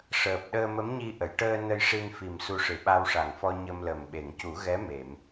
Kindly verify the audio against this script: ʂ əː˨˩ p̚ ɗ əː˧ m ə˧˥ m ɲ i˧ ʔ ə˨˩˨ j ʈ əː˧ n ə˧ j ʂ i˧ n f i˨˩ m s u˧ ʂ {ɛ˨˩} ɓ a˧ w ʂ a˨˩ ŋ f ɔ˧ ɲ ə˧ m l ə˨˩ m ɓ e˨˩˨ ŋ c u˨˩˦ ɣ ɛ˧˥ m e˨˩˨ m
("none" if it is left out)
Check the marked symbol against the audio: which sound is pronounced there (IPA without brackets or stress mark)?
ɨ˨˩